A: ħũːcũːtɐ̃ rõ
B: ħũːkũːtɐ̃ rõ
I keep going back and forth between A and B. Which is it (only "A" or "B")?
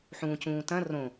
A